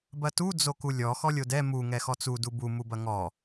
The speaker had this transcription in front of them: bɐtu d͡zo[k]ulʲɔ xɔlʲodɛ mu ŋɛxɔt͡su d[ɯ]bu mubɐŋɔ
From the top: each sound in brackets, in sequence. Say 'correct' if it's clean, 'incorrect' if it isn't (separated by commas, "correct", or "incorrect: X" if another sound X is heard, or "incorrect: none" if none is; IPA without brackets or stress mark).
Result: correct, incorrect: u